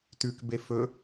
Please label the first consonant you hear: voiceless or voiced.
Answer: voiceless